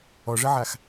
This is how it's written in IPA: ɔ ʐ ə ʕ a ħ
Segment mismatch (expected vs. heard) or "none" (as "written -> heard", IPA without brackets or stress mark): ħ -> x